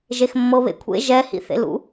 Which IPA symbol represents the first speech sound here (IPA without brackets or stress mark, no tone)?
ʒ